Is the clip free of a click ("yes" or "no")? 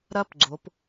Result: no